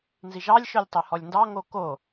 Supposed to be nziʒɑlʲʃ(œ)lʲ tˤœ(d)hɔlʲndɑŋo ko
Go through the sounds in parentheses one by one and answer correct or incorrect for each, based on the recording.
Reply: correct, incorrect

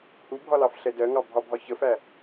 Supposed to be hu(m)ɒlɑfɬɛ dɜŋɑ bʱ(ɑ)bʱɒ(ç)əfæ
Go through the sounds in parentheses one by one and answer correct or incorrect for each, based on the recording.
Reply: incorrect, incorrect, correct

